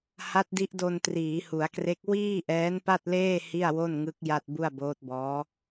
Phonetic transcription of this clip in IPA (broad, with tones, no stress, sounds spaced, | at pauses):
h a˦˥ t̚ d i˦˥ ʔ d o˧ n t r iː˩˦ h u˩˦ a̯ k r e˦˥ k̚ w iː˥˩ ʔ ɛː˦˥ n p a˥˩ t̚ l eː˥˩ h i˥˩ a̯ w o˥˩ n ŋ ɯ˦˥ k̚ j a˥˩ t̚ b u˥˩ a̯ b oː˦˥ t̚ b ɔː˦˥